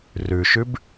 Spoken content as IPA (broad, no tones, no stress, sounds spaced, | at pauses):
r ʉ ʃ ʉ b